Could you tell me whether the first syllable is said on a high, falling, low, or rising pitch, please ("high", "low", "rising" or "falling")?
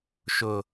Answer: low